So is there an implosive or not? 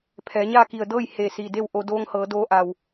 no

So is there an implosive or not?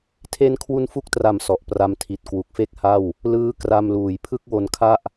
no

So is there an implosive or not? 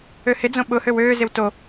yes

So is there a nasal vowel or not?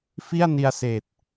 no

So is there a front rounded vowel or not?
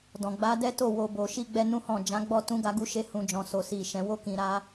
no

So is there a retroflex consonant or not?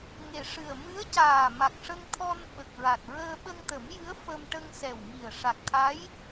yes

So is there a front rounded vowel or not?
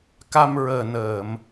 no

